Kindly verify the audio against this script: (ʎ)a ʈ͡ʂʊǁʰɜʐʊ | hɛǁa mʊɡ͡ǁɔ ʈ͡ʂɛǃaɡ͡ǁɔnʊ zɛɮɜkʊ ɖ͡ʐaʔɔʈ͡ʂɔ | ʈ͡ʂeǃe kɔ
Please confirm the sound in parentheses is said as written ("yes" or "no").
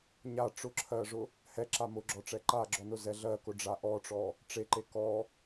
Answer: no